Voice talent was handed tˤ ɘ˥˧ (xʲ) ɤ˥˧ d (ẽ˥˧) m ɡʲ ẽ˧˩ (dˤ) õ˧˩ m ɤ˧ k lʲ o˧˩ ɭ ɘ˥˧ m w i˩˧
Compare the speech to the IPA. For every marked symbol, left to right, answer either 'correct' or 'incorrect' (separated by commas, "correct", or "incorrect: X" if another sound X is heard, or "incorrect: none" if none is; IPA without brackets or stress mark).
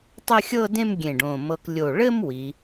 correct, correct, incorrect: ɖ